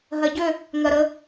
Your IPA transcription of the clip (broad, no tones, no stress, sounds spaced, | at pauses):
ɦ ɜ ɟ ø | ŋ ɜ ɾ ə